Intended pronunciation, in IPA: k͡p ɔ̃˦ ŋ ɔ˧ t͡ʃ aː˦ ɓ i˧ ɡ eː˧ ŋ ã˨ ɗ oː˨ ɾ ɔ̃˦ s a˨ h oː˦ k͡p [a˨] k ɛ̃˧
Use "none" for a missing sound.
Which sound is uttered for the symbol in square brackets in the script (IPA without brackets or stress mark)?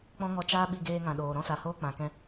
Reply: ã˨